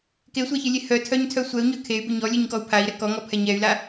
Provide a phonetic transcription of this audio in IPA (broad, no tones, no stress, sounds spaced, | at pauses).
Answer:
k e sʷ a ç ɨ lʲ e h œ tʰ œ ɲ tʰ œ sʷ ɛ u̯ ɲ œ kʰ e y̯ b ʊ ɲ ɔ lʲ ɨ ɲ k ɔ u̯ pʰ a i̯ ɾ ɛ k ɔ ŋ ɔ pʰ ɛ ɲ ɛ y̯ l a